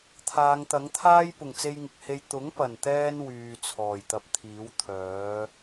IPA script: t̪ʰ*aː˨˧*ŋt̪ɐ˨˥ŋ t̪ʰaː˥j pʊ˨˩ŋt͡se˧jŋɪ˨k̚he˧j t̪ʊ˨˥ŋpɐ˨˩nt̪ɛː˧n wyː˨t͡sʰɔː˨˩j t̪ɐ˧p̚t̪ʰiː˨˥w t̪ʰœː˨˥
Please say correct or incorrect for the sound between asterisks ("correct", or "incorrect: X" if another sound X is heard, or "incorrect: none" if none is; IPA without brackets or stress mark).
correct